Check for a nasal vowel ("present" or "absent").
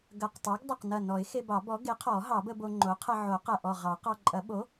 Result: absent